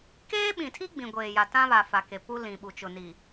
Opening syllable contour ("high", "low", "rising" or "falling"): high